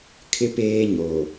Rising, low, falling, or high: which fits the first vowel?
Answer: high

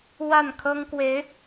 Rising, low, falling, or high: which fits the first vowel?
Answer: falling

